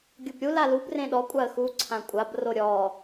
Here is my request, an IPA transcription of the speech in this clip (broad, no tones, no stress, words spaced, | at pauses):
ɡʲʊbɾʲu lalub rẽɗɔ kʷʼaə̯xu ǀʰãkʷʼab roɾʲɔ